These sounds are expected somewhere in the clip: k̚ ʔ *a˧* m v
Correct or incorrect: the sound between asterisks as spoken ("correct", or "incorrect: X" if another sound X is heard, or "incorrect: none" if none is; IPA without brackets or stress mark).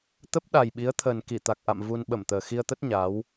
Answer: incorrect: a̰˧˨